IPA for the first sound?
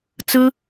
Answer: t͡s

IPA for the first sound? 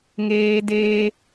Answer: ŋ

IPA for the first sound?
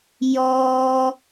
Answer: j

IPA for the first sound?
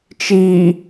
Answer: t͡ʃ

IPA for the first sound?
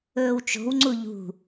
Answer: ɵː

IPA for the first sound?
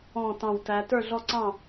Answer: ɔ̃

